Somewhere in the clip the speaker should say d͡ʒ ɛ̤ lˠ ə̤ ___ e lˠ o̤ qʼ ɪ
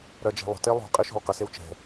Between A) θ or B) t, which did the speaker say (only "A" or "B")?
B